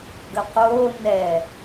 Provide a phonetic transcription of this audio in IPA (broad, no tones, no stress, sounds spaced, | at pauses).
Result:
ɡ ə q oː n ɛ